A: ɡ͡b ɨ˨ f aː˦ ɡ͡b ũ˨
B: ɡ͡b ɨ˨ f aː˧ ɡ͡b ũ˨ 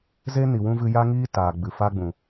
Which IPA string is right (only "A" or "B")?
B